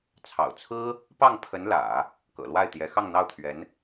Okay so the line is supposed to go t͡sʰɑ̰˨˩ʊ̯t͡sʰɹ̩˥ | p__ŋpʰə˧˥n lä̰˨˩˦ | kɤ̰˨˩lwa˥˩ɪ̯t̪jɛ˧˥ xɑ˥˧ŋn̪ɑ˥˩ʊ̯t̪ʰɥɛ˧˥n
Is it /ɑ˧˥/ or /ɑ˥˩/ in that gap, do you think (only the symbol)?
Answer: ɑ˥˩